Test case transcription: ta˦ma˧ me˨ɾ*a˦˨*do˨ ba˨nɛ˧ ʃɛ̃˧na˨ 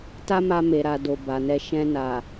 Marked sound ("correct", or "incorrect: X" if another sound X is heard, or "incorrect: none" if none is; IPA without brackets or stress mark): incorrect: a˨